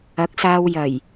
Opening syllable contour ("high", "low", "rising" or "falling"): rising